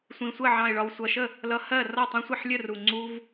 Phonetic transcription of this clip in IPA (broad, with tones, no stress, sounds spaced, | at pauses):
sʷ ĩ˨˩ sʷ ə˥˩ ʕ ɑ̃˨˩ ɪ̯ ɭ ɒ˨˩ w sʷ ʌ˨˩ ʃ ə˥˩ | l ʌ˧ h ɜ˥˩ r ɒ˥˩ tˤ ĩ˧ sʷ ɜ˥˩ ħ lʲ ə˥˩ r u˨˩ ŋ͡ǀ u˧ v